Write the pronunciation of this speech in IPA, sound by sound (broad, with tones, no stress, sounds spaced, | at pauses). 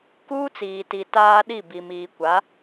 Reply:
k uː˦ t͡s iː˨ t i˨ t aː˦ ɗ i˦˨ b i˨ m iː˨ kʷ a˨˦